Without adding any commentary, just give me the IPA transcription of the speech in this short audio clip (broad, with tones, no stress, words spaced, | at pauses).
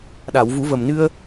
ɗa˨˩˨wvu˨˩˦və˨˩mnɨ˧ə̯